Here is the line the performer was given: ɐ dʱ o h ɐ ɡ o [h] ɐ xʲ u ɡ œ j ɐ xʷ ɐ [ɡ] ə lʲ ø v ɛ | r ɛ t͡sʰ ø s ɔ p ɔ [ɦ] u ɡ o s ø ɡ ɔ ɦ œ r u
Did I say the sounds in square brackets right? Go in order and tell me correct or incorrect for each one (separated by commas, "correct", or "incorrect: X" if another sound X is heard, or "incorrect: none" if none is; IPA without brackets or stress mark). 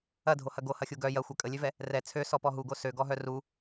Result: correct, incorrect: kʼ, correct